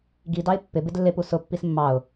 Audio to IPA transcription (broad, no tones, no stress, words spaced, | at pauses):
ɡidɑɪ̯ pːɪbɪd lːɪpu sʊpːis mːɑʊ̯